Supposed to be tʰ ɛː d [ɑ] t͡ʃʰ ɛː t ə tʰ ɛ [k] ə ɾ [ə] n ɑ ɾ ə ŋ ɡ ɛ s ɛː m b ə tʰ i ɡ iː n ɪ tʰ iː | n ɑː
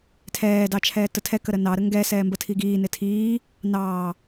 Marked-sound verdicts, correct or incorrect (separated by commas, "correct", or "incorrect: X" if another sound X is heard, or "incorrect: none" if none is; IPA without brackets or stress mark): correct, correct, correct